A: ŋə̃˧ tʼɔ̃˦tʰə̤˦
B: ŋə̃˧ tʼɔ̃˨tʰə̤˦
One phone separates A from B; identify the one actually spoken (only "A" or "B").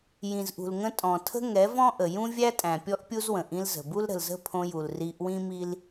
B